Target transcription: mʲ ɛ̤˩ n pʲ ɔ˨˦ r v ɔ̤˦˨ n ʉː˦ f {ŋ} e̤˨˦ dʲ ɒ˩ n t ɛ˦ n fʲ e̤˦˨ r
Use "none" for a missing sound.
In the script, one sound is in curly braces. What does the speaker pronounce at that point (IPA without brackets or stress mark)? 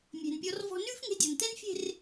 ŋ